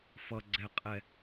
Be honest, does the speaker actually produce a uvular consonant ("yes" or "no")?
yes